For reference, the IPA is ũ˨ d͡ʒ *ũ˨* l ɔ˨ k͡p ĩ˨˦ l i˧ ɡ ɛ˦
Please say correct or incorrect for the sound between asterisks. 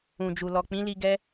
incorrect: u˨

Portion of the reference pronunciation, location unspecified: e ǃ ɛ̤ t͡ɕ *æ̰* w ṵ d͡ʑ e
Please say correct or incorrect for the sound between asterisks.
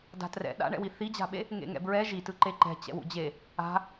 incorrect: ɛ̰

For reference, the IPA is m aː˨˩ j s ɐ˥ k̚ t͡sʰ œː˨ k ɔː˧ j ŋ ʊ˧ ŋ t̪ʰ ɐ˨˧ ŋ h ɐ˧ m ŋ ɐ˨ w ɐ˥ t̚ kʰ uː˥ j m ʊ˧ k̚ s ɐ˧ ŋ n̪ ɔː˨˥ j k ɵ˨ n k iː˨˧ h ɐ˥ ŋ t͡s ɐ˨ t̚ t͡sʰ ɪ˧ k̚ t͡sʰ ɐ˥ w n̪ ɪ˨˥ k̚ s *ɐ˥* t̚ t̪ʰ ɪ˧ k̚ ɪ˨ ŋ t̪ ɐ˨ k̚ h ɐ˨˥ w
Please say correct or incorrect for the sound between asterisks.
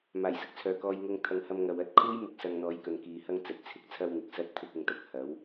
correct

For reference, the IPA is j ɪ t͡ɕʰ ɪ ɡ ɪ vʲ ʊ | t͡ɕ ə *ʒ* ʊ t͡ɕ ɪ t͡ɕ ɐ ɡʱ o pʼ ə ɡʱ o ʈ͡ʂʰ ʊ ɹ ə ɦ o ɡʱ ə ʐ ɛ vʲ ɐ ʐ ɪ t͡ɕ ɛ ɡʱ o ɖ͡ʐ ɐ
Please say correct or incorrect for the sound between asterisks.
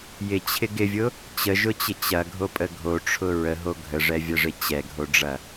correct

